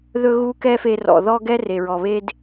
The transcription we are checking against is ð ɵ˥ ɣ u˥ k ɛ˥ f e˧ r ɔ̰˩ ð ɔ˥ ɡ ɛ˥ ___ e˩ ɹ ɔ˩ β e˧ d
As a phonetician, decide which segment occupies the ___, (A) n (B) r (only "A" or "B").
B